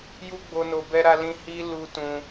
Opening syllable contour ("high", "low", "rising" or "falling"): high